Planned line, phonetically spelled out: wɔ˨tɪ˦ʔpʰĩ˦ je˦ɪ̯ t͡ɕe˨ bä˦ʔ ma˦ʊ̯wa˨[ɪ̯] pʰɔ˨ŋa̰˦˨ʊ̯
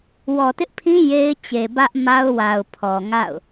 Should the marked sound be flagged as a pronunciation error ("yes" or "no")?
yes